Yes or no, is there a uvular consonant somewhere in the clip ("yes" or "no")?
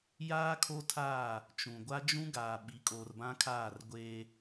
no